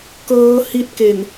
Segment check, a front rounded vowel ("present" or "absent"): absent